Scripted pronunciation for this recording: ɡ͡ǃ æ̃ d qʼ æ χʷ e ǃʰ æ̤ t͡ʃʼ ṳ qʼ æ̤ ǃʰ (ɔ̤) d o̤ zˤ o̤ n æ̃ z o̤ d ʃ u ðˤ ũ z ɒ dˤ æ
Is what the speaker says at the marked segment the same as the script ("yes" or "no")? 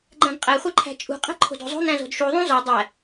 no